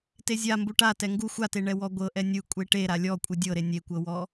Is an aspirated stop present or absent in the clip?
absent